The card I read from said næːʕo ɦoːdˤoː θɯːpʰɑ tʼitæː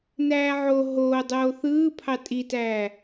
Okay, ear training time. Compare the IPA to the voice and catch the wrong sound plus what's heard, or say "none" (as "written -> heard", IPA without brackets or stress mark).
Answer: none